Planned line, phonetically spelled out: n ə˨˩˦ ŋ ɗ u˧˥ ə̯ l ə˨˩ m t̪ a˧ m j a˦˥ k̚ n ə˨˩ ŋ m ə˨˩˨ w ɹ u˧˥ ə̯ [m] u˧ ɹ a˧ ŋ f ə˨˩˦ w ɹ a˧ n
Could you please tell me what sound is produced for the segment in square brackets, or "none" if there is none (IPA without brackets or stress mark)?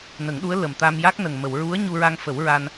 ɲ